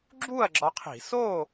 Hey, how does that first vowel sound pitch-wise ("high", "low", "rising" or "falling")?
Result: falling